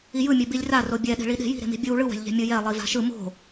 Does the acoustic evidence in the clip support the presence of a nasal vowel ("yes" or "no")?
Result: no